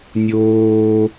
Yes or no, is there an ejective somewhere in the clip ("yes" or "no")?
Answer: no